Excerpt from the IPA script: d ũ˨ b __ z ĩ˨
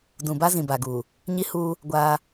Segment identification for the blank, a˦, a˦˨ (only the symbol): a˦